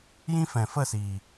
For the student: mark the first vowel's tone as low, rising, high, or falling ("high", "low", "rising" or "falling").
high